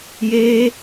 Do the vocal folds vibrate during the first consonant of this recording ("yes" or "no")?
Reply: yes